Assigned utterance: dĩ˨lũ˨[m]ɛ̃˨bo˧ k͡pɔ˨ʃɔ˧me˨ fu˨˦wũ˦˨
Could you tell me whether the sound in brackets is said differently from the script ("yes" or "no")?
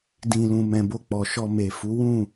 no